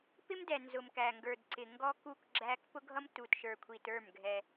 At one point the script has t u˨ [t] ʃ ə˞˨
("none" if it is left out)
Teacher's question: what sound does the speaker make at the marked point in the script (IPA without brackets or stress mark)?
t